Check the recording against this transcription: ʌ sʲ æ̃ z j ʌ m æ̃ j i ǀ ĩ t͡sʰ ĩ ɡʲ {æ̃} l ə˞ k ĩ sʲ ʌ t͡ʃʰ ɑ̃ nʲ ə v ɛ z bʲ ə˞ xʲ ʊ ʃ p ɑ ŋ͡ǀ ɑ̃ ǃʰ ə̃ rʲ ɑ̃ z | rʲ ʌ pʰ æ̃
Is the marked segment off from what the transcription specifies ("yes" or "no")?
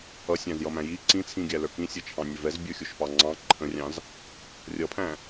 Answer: yes